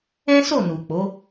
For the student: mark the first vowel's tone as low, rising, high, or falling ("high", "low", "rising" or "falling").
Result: high